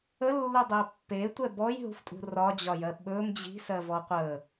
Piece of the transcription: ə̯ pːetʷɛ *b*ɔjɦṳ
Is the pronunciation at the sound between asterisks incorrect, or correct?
correct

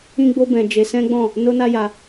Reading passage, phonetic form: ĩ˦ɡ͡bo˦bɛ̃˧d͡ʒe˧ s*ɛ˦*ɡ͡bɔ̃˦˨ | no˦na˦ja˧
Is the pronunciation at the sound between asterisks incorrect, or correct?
incorrect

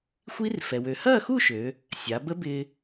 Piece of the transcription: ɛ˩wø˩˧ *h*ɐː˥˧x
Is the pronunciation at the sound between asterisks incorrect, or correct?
correct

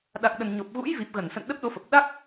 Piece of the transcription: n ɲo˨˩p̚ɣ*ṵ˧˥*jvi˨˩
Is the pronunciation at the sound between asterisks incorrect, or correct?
correct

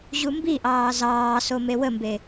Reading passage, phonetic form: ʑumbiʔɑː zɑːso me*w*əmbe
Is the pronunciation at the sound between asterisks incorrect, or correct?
correct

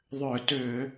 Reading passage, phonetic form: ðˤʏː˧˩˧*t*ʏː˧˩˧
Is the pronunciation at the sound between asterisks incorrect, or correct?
correct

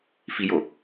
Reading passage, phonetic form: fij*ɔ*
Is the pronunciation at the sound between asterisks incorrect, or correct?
incorrect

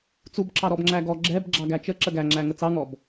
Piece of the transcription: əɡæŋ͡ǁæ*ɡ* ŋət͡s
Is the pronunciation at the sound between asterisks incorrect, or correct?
incorrect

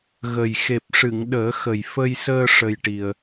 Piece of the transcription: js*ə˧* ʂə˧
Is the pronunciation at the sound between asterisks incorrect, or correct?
incorrect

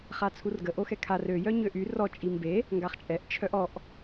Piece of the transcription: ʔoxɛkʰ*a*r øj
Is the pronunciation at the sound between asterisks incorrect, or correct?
correct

